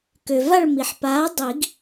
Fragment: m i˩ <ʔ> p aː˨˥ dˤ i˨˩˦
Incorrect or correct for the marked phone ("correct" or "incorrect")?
incorrect